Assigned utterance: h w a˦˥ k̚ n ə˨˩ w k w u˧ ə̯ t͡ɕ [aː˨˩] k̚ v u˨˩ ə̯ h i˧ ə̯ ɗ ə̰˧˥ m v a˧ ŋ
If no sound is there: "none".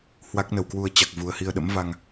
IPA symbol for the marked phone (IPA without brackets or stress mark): a˨˩